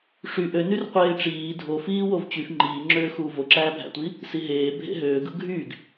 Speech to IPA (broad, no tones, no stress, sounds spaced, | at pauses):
ʂ y ʔ ø n y r qʷ eː ʈ͡ʂ iː dʱ o f iː w o v t͡ɕ y f ŋ͡ǃ iː ŋ͡ǁ øː x uː v o ǁ æː bʱ æ̰ tʷ i | s i ɦ eː bʱ ḛ ɦ øː ɡ ɯ ɡʱ y ɡ